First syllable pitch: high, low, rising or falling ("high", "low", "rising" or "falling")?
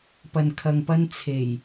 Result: low